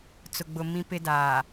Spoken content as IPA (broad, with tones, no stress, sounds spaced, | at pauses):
t͡s ʊ˨ ɡ͡b ʊ˨ m ĩ˦ p ɪ˦ d aː˨